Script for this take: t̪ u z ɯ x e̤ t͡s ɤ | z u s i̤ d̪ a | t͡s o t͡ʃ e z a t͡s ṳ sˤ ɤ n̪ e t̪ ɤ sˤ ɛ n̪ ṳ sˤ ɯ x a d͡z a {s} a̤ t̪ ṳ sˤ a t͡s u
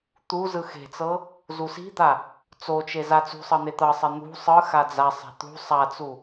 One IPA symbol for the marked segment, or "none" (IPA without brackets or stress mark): sˤ